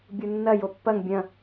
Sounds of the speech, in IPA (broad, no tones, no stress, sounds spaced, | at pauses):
bʲ u nː ɐ j o pː ɐ ŋ bʲ ɐ̃